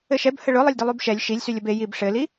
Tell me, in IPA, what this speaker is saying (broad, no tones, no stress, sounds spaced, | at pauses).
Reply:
ɘ ʃ ɛ b h ə ɭ ʊ lˠ ə lʲ d ɘ lˠ y b ʃ ɛ lʲ ʃ i lʲ s y lʲ ə b e j i b ʂ ɘ l i